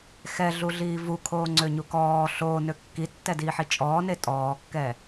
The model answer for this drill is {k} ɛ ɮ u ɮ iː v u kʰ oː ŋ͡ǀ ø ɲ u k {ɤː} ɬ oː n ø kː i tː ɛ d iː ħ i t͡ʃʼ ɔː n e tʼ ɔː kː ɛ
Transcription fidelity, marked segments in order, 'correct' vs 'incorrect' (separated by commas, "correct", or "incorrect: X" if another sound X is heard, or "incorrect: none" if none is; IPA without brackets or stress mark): incorrect: x, incorrect: ɔː